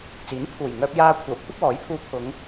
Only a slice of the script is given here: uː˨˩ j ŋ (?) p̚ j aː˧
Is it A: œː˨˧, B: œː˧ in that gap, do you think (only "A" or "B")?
B